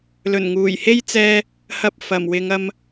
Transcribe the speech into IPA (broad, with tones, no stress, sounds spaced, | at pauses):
l ɵ˨˩ n ŋ uː˨˩ j h e˥ j t͡s ɛː˧ | h ɐ˧ p̚ f ɐ˨˩ m w ɪ˨˧ ŋ ɐ˧ m